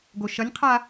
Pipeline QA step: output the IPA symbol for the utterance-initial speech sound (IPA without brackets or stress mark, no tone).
ɡ